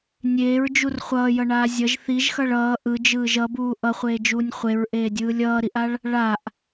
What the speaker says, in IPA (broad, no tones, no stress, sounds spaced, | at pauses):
nʲ eː ɹ d͡ʒ u r χʷ ʌː j ʌ ɳ aː zʲ ʌ ʒ θ i ʒ x ʌ ɭ ʌː ʔ ɯ d͡ʒ ɯː ʒ ʌ b uː ʔ ʌ χʷ eː d͡ʒ uː nʲ χʷ e ɹ ʔ eː dʲ ɯː lʲ ʌː ɾ i ʔ a ɭ | ɭ a ʔ